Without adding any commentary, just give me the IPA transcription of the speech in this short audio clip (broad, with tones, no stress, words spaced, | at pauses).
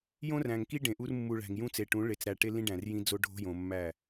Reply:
jõ˦ræ̃˨ŋki˦ ɖẽ˨ʔu˦r mːu˨ ɭæ̤˨ŋjũ˦t͡se˨ʈũ˨˦ ɭe˨t͡sɾæ˨ʈe˦ lĩ˦ɖæ̃˨r jĩ˦d͡zo˦ɖʱo̤˦jõ˨ mːæ˦˨